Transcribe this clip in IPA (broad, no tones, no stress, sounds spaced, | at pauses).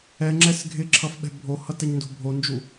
ɛ ŋ͡ǁ ɛ s ɡʱ ɪ ǁʰ ʌ f ɓ ɛ̤ bʱ o h ʌ t ɛ ɲ n d o̤ bʱ o n d͡ʒ u